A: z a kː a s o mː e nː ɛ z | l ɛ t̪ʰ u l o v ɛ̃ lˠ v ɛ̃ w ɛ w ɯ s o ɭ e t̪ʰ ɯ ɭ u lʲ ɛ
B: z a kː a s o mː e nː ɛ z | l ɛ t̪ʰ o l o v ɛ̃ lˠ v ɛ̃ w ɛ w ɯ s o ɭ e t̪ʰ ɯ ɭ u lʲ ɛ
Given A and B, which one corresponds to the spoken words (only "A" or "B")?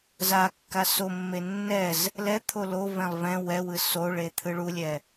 B